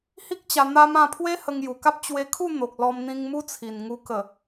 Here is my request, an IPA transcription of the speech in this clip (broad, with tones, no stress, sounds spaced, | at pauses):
h i˦ k̚ t͡ɕ a˧ n̪ a˦ m ã˧ pʰ w e˦ h ə˧ ŋ j u˨˩ k a˦ p̚ t͡ɕ w e˧ kʰ u˥˧ n̪ o˨ k̚ l ɔ˧ m n̪ ĩ˧ ŋ m u˦ t͡sʰ i˨˩ n ŋ u˧ k ə˨˩